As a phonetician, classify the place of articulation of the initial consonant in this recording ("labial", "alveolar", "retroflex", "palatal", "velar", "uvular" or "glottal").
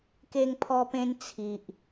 velar